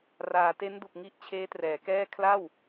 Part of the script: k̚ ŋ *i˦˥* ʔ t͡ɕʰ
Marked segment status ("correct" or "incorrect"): correct